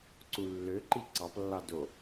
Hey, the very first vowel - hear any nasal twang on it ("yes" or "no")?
no